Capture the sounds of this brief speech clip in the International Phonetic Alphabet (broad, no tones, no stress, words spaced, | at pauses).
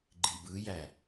ɡ͡ǃibɯjæ